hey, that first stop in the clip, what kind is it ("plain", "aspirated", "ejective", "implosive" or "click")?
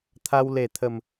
aspirated